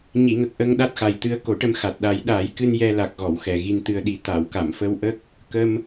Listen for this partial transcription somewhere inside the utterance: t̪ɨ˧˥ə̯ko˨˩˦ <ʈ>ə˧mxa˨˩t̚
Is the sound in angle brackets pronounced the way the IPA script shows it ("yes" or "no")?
yes